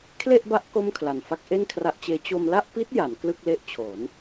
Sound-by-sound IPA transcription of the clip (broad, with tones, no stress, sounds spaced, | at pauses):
kʰ l e˥˩ ʔ b a˦˥ ʔ k o˥˩ m kʰ l a˨˩ n f a˦˥ k̚ ʔ e˥˩ n kʰ r a˦˥ ʔ t͡ɕ eː˦˥ t͡ɕ o˧ m l a˥˩ ʔ p i˦˥ t̚ j a˩˦ n k l ɯ˥˩ k̚ l e˦˥ ʔ t͡ɕʰ o˩˦ n